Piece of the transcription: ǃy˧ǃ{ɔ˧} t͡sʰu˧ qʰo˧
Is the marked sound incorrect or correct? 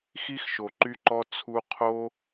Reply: correct